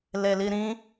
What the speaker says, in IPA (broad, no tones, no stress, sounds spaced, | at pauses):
l e l i ɾ ĩ